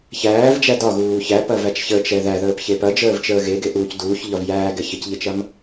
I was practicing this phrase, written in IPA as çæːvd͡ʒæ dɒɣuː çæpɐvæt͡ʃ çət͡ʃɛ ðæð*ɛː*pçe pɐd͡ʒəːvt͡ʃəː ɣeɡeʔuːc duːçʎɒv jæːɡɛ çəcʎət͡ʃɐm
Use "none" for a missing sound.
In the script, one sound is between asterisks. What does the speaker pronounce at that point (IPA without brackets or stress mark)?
əː